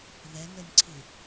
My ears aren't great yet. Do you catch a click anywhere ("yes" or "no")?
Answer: yes